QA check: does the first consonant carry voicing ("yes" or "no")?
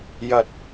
yes